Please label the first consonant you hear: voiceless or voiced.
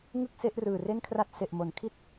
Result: voiced